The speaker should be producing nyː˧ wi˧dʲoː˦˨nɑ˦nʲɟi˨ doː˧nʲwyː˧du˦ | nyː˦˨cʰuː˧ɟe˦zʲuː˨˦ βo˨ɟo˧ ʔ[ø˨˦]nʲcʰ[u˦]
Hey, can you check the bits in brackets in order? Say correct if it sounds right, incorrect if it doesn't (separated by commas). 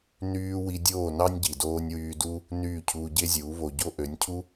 correct, correct